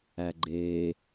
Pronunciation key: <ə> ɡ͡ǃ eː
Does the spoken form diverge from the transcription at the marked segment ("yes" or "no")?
yes